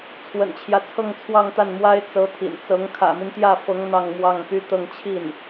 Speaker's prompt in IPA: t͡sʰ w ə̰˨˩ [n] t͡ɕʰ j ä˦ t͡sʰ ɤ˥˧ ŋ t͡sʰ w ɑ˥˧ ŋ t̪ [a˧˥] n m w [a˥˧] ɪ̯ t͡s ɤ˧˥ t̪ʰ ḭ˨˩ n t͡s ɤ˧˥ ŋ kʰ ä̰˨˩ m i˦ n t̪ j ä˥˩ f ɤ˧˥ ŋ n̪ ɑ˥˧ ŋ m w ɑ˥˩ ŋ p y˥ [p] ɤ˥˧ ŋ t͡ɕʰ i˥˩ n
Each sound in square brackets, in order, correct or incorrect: correct, incorrect, incorrect, incorrect

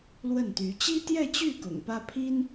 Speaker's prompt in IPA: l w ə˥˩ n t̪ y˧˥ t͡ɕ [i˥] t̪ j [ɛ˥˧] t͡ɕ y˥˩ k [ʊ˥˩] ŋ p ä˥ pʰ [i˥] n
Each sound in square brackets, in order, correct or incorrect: correct, correct, incorrect, correct

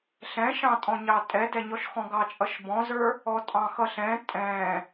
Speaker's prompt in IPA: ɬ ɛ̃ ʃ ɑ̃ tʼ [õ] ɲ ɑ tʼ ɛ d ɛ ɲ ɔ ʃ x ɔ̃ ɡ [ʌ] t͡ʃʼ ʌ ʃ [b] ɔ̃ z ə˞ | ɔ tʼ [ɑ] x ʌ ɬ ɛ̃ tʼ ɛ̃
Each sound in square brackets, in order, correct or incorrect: incorrect, incorrect, correct, incorrect

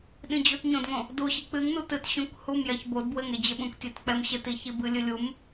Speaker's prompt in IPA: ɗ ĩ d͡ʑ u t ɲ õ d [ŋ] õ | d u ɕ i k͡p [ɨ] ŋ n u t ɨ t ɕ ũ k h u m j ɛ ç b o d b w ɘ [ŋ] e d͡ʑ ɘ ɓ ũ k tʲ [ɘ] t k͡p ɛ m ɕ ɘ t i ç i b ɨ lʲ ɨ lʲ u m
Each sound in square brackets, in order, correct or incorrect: correct, correct, correct, incorrect

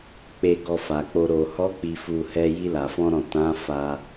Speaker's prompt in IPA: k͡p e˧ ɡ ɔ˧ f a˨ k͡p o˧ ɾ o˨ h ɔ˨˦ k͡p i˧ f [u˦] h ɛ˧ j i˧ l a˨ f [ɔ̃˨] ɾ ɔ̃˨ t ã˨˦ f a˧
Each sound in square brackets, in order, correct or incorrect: incorrect, incorrect

